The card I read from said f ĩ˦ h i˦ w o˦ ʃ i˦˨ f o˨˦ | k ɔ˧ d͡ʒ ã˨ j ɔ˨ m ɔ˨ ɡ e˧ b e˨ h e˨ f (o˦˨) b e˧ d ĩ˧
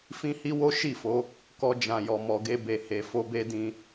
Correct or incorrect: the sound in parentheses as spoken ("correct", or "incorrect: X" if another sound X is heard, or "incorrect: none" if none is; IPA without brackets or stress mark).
incorrect: o˧